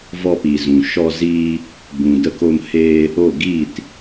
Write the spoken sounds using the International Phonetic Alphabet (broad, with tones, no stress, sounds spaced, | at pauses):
v ɔ˧ p i˨ z ũ˨ ʃ ɔ˧ z iː˧ | b ũ˨ d ə˧ k o˧ m h eː˧ | o˦˨ ɡ iː˦˨ t